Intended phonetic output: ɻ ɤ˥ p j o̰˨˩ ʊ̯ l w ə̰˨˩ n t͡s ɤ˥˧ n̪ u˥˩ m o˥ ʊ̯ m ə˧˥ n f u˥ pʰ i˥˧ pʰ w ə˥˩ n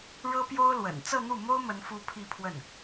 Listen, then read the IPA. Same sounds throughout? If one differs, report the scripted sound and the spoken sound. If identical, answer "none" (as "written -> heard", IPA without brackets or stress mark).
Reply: o̰˨˩ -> o˥